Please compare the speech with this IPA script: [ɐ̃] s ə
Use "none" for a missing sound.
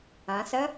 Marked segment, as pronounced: ɐ̃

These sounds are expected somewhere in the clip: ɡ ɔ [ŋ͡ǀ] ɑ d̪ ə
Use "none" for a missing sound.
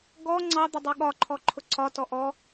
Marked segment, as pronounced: ŋ͡ǀ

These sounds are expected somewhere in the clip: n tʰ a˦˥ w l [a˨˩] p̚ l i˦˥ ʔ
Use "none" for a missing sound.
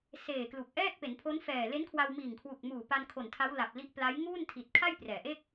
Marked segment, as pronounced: a˨˩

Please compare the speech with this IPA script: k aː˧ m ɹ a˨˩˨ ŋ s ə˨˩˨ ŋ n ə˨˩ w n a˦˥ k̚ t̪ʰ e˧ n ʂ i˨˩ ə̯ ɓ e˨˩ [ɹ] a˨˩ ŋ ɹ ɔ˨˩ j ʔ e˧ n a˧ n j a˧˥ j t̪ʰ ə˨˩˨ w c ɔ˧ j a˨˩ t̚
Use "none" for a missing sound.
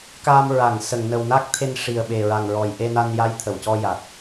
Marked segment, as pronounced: ɹ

